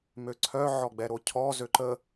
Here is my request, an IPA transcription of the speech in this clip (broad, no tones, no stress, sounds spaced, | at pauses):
m ø ǀʰ œ ʕ ɔ ɡ͡b ɛ ɾ o cʰ ɔ z ø ǃ ə